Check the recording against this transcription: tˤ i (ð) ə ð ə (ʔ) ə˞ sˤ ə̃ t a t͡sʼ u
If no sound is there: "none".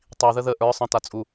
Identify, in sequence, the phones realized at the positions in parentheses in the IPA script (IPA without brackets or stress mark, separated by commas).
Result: ð, ʔ